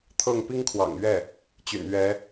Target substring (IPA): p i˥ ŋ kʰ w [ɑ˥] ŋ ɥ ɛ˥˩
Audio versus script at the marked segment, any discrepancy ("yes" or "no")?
yes